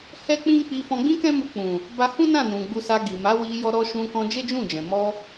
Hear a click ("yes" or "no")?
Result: no